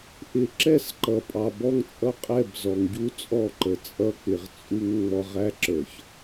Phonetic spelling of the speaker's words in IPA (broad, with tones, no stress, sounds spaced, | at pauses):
ʔ ɪ˨ ǁ ɛ˦˨ s ǃ ʌ˨ pʼ ɑ˨ b ɔ˦ ŋ t͡sʼ ʌ˦ qʼ ɛ˦˨ b z ɔ˨ ŋ ɟ u˦ t͡sʼ ɔ˦˨ ǃ ə˨ t͡sʼ ʌ˦ k͡p ɪ˨ ʁ t͡sʼ u˦ ŋ ŋ͡m ɔ˦ ʁ æ˦ ǁ ə˞˨ ç